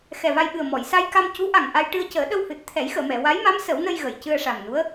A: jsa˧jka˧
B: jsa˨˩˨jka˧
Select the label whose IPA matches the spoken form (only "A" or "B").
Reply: A